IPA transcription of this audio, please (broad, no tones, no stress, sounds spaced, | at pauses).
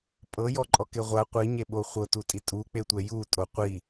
pʼ ɤ j ɔ ǃʼ ɔ k e ʁʷ a qʷ i ɲ e ɓ o χʷ ɤ t u tʼ i tʼ u k͡p e tʷ ɛ j u tʼ o qʷ i